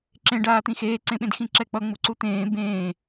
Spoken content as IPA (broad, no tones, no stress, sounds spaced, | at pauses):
ǁ ẽ ɖ aː t̪ ĩ x eː ǀ ẽ ɓ ẽ d x ĩ ǁ ɛ k͡p ʌ ŋ͡m u ǀ u t̪ ẽː b ẽː